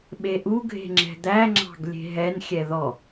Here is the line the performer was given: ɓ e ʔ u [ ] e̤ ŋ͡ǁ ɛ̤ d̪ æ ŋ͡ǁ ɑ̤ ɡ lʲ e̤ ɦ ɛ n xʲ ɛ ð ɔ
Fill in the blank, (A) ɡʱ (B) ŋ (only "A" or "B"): A